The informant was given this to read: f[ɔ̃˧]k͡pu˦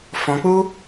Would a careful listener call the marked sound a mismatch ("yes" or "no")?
no